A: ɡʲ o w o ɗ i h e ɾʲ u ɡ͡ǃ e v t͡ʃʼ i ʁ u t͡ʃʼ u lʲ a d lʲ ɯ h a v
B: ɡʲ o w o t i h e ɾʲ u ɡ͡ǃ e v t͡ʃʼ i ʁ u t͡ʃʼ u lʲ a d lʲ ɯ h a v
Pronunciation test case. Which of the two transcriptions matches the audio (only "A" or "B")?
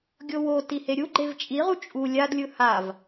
B